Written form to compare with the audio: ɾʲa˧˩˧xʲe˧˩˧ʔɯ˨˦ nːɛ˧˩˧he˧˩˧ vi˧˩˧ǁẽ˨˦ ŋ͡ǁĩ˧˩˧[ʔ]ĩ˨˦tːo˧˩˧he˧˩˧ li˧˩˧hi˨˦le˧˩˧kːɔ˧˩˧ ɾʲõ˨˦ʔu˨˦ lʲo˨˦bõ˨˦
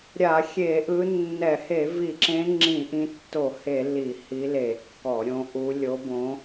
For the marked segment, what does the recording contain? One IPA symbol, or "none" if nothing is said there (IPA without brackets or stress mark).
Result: ʔ